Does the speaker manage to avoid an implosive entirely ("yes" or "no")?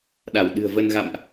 no